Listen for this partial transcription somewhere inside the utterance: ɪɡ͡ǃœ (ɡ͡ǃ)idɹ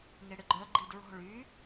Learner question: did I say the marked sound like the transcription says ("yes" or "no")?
yes